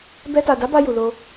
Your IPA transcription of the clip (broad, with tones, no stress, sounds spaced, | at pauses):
b ɛ˧ t a˨ d a˨˦ b a˧ j u˨ l o˧